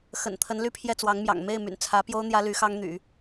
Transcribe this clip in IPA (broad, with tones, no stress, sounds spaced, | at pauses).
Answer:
x ə̰˨˩ n t̪ʰ ə˧˥ n l y˥ pʰ j ɛ˥˩ t͡s w ɑ˧˥ ŋ m j ɑ̰˨˩ ŋ m e˥˩ ɪ̯ m y̰˨˩ n t͡sʰ ä˧˥ p j o˥ ʊ̯ n̪ j ä˥ l y˧˥ x ɑ˥ ŋ n̪ y̰˨˩˦